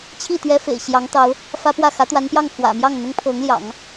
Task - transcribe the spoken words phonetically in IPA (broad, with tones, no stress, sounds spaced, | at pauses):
t͡ɕʰ i˥˩ t̪ ɥ ɛ˥ f ḛ˨˩ ɪ̯ ɕ j ɑ˧˥ ŋ t̪ ɑ˧˥ ʊ̯ | f ä˥ p w ä˥˩ x ä˧˥ t̪ w a˧˥ n p j ɑ˥˩ ŋ x w ä̰˨˩ m j ɑ˥˩ ŋ n̪ ʊ˥ ŋ pʰ ɤ˧˥ ŋ l j ɑ̰˨˩˦ ŋ